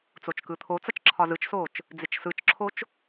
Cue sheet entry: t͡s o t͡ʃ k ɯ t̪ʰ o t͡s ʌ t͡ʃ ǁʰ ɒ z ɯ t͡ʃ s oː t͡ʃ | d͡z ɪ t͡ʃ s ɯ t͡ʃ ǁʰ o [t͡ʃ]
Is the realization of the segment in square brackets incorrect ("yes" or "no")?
no